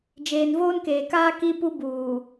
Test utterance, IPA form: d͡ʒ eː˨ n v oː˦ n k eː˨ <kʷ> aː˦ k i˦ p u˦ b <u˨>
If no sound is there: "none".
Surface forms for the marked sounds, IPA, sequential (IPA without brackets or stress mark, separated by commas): k, uː˨